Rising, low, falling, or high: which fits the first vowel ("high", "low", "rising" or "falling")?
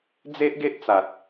high